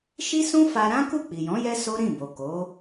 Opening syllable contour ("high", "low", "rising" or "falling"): high